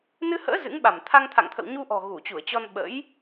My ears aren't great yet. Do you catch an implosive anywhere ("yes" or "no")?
yes